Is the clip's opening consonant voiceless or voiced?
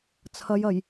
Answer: voiceless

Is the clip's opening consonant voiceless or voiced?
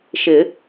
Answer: voiceless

